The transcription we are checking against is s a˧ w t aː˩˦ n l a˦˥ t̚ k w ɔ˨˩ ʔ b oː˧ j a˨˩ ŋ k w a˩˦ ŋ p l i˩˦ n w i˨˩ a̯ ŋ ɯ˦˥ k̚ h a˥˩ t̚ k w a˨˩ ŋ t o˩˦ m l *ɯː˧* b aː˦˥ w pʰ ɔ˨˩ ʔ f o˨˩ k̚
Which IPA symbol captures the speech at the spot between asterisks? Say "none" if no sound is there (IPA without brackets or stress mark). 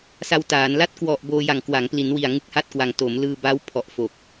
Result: ɯː˧